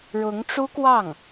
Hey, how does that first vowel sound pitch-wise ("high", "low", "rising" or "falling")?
rising